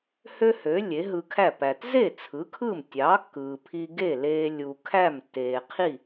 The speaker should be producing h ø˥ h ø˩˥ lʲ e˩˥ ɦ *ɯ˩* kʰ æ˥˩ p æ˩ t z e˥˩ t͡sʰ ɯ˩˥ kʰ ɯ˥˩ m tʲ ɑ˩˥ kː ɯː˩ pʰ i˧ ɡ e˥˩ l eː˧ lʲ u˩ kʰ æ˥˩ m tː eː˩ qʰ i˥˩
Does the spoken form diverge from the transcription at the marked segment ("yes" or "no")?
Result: yes